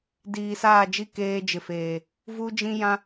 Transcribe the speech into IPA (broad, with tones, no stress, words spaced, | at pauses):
diː˨saː˦˨d͡ʒi˦ keː˦d͡ʒɪ˨feː˨ | vu˦d͡ʒĩ˦jã˦